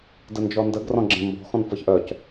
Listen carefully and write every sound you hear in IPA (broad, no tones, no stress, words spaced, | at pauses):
dənd͡ʒɔndəɡ rɔ̃ɡ͡ǁẽmbɔ̤ xɔ̃nfɤçʔœc